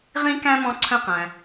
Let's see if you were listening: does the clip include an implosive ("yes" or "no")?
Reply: no